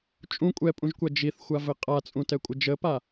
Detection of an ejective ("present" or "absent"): present